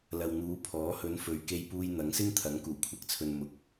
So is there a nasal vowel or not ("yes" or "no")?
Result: no